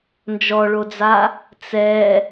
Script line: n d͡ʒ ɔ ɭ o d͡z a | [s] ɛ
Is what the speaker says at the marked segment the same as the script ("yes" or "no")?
no